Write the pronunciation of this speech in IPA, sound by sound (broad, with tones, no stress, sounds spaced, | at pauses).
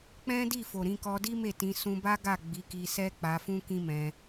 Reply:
k͡p ɛ̃˦ d i˦˨ f o˨ ɾ ĩ˧ k ɔ˧ d i˦ m e˦˨ t ĩ˧ s ũ˧ b a˦ ɡ a˦˨ ɡ͡b i˨˦ k i˧ s ɛ˦ k͡p a˧ f ũ˦ k ĩ˦ m ɛ̃˧